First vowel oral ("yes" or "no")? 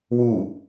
yes